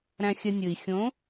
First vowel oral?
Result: no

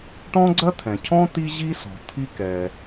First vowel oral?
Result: no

